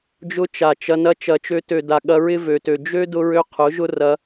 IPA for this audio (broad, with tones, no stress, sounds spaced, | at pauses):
d͡ʒ ʊ˦ t͡ʃ a˨ t͡ʃ ɐ˧ n ɐ˦ t͡ʃ ɐ˨ t͡ʃ ø˧ t ø˨ d a˨ ɠ ɐ˧ ɹ ɪ˦ v ø˨ t ø˨ d͡ʒ ø˦ d ʊ˧ ɹ ø˧ qʰ ʊ˨˦ ʒ ʊ˦ r ɐ˧